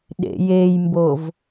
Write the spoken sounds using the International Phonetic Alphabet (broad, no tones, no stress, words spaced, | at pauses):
ɗḛjejmbov